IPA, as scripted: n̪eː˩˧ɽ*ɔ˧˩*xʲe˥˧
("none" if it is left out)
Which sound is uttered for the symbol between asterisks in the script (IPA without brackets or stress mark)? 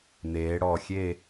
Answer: ɔ˧˩